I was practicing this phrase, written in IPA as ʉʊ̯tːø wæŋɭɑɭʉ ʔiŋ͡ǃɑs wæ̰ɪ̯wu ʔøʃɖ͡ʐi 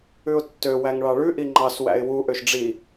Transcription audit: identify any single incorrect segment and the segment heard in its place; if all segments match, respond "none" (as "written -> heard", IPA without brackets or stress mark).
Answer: none